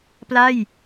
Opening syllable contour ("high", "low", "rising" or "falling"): falling